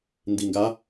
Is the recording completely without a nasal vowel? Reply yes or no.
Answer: yes